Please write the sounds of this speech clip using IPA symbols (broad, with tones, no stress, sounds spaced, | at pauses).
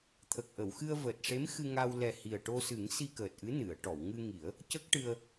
t̪ʰ ə˨˩ k̚ ʔ ə˨˩˨ w x ɨ˧ ə̯ v əː˨˩ t̚ ʂ e˧˥ m x ɨ˧ ŋ a˧ w l ɛ˨˩ h i˨˩ ə̯ ʈ o˧ s ɨ˨˩˦ ŋ s i˧ k əː˨˩ t̚ ʔ ɨ˧˥ n ɨ˨˩˨ ə̯ ʈ ɔ˨˩˨ w ŋ ɨ˧ ŋ i˨˩˦ ə̯ | c ə˦˥ k̚ ʈ ɨ˧ ə̯